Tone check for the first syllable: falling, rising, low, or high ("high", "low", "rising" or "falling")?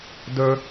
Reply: high